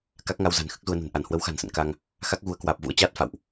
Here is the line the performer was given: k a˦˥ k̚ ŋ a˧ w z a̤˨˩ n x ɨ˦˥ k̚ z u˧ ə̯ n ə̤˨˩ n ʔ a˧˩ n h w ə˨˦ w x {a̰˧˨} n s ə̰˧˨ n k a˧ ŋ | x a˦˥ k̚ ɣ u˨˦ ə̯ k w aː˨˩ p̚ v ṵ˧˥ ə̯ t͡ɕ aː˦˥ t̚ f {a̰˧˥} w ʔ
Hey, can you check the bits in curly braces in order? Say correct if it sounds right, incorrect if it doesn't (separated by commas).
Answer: incorrect, incorrect